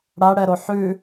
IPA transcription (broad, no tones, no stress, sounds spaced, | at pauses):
ɽ a ɽ ɛ ɾ o ħ ʉ